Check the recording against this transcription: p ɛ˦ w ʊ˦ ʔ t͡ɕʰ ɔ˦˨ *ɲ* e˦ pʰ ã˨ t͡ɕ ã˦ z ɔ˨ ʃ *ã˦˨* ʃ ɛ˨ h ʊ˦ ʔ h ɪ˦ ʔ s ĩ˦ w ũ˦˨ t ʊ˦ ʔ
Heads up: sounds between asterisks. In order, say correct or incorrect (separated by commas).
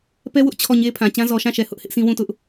correct, correct